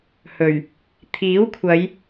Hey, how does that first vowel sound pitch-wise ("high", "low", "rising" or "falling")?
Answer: low